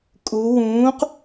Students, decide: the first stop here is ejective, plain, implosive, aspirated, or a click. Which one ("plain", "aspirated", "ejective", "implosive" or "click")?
ejective